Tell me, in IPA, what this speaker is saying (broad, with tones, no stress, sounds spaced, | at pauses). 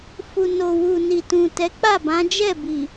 f u˨ n o˨ w u˨ n i˨ t ũ˨ t ɛ˨˦ k͡p a˦˨ b ã˨˦ d͡ʒ ɛ˦˨ b i˨